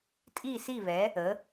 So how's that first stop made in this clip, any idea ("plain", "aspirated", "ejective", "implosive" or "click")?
ejective